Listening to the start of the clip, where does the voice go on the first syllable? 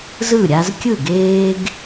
falling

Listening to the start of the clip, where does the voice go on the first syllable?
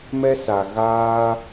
high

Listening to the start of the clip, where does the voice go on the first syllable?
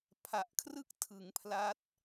low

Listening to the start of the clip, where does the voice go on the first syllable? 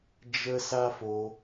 high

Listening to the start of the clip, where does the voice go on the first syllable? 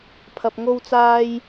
low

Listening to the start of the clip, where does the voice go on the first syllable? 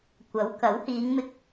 rising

